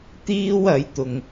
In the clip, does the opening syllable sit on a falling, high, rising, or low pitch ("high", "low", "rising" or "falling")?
high